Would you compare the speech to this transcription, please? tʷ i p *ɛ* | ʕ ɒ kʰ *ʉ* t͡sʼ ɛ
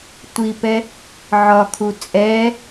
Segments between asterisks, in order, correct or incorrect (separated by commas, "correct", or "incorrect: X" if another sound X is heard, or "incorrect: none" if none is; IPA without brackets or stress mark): correct, incorrect: u